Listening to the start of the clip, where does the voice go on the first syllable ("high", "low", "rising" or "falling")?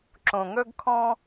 low